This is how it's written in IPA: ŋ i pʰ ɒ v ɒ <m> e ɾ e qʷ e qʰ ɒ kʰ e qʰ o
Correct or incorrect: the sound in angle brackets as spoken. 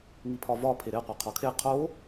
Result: incorrect: pʰ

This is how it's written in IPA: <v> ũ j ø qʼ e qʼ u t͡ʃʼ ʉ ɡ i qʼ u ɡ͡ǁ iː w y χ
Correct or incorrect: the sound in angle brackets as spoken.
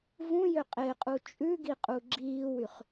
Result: correct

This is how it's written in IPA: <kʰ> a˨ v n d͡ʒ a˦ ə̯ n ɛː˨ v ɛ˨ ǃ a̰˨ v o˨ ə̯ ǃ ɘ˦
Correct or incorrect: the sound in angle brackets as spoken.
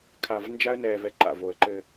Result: correct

